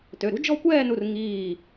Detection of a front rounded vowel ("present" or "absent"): present